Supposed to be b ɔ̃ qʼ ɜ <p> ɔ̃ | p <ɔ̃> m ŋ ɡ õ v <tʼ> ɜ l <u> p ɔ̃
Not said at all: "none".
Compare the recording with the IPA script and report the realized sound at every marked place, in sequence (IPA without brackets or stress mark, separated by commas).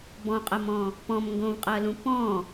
m, ɔ̃, qʼ, ũ